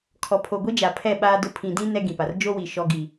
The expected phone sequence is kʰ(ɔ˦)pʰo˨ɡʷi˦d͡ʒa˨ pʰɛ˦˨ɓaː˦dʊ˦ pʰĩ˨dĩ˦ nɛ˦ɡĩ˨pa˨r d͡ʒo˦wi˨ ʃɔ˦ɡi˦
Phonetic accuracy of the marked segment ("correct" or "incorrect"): incorrect